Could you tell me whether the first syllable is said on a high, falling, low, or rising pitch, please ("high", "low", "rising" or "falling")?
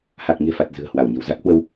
low